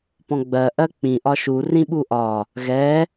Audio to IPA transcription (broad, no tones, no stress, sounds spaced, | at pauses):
p ɔ̃ ɡ͡b ɜ ʔ ɜ k͡p ĩ ʔ ɒ ʃ u r ĩ ɓ u ʔ ɒ | ɣ ɛ